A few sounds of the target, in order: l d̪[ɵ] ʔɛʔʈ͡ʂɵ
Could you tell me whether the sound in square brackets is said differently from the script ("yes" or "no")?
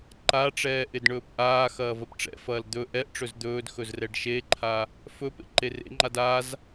no